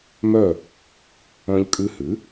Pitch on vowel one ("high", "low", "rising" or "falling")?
falling